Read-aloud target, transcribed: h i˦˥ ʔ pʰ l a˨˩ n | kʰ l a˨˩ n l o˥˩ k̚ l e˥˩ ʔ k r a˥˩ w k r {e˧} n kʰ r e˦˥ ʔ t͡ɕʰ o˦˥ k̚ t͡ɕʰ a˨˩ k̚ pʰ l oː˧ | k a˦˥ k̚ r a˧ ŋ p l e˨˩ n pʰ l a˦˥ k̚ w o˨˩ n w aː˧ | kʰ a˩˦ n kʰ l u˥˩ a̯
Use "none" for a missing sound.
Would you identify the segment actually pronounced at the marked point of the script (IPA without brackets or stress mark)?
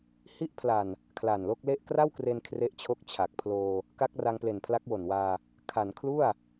e˧